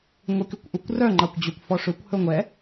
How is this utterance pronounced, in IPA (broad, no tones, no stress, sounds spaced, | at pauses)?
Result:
ŋʷ i k y kʷ ʔ u kʷ r œ ŋ͡ǃ ɑ kʷ d͡ʑ ø kʷ f ɔ ʂ ø kʷ h ɵ ŋʷ ɛ